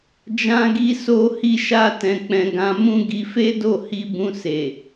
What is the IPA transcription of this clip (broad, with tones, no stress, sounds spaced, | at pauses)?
d͡ʒ ã˦ ɡ i˦ s o˦ h i˦ ʃ a˦ t ɛ̃˧ k͡p ɛ̃˧ ɡ ã˧ m ũ˦ ɡ i˧ f e˦ d o˦˨ h i˧ b ũ˧ s e˨